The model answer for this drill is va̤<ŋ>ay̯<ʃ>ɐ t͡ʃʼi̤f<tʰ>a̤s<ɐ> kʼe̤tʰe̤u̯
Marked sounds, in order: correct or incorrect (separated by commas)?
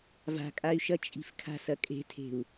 incorrect, correct, incorrect, correct